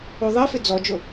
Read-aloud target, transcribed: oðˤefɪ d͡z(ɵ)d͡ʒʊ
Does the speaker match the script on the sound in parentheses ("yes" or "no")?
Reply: no